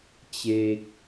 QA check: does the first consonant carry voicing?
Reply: no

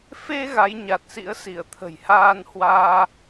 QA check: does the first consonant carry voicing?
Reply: no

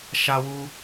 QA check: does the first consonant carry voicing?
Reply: no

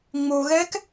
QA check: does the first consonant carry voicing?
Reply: yes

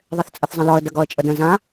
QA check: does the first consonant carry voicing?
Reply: yes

